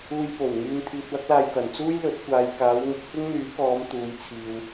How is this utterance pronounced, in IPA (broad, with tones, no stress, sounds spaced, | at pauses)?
uː˧ j p o˨˩ w ŋ yː˨ n t̪ʰ iː˧ t̚ w ɐ˥ k̚ l aː˧ j t̪ ɐ˨˩ n t͡s uː˥ j l ɵ˨˥ t̚ kʷ aː˨ j k aː˨˧ w ŋ ɪ˧ k̚ f ɪ˥ ŋ n̪ yː˨˥ k ɔː˨˧ m t̪ uː˨˧ j t͡sʰ iː˨ w